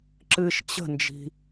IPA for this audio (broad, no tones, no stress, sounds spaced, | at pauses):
ǁ ɨ ʃ t͡ɕ ə̤ n d͡ʒ i̤